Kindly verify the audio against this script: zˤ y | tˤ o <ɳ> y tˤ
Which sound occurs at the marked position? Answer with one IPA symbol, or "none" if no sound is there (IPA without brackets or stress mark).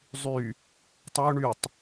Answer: ɳ